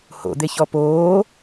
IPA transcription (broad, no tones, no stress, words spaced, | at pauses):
ho̰d̪eçɔ poː